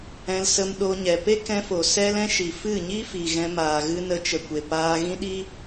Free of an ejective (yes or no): yes